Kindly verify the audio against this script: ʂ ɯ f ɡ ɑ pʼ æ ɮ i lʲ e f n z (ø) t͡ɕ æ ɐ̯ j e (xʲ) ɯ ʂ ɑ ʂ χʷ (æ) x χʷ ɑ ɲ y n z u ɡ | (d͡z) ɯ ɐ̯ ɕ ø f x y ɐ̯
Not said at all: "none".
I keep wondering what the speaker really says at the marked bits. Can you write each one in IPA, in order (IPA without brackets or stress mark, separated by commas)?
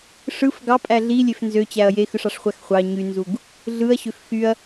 ø, x, æ, ɮ